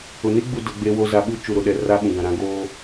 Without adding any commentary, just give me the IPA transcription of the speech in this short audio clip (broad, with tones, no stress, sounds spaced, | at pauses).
ʊ˨ n i˦ ɡ͡b u˨ d ʊ˨ ɡ͡b e˦ w o˦ z a˨ ɓ u˦ t͡ʃ u˨ ɾ ʊ˨ ɗ ɛ˨ r a˦ ɓ ũ˨ ɡ ã˨ ɾ ã˦ ɡ oː˦